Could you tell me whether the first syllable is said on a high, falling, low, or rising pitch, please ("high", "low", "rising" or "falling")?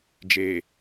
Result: low